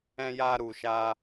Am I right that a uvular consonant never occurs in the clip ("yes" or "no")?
yes